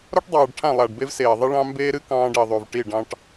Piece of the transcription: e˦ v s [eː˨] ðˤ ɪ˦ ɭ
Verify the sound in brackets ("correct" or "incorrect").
correct